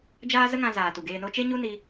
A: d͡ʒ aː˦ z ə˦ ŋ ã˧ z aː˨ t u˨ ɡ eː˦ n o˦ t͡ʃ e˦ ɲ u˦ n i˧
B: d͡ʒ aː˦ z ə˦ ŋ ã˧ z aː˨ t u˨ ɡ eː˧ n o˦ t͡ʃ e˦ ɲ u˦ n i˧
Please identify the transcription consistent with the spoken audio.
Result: B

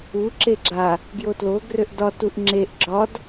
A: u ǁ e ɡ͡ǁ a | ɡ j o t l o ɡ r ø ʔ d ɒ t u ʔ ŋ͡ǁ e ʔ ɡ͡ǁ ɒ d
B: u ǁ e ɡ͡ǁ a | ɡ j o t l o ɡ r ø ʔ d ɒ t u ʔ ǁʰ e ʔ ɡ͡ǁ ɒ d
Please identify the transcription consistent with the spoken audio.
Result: A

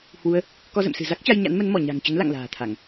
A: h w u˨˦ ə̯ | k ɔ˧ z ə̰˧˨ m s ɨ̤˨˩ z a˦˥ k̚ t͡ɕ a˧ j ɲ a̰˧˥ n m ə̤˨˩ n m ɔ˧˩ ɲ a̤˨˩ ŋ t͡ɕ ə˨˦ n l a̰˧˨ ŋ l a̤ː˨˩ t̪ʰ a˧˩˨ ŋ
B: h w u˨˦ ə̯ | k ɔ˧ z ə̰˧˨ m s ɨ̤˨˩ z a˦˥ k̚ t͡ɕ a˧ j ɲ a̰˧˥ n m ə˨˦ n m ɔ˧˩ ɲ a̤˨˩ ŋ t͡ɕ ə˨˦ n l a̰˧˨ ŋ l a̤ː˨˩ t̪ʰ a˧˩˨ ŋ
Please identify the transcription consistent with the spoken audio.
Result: B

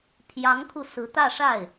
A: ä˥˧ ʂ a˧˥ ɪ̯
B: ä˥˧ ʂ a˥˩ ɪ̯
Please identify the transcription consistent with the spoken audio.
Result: B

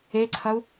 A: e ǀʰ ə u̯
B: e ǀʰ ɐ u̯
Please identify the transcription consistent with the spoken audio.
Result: B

